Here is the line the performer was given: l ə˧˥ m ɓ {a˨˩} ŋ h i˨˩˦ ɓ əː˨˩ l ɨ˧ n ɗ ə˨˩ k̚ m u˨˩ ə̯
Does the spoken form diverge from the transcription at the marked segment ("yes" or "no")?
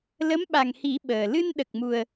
no